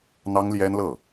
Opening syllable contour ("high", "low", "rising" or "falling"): high